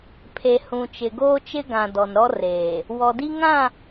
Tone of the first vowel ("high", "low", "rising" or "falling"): low